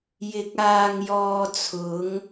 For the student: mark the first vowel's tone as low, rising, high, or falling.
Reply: rising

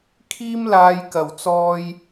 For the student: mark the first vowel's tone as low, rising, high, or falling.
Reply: high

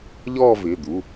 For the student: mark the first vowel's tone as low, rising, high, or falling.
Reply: falling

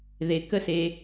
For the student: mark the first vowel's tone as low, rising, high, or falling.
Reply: low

